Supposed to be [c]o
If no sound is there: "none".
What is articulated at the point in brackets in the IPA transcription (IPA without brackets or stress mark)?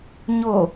ɲ